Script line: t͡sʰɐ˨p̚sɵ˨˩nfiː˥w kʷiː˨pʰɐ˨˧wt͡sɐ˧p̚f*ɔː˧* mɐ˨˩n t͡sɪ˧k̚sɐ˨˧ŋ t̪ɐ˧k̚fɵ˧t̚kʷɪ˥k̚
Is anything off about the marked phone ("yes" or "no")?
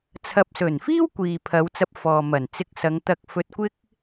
yes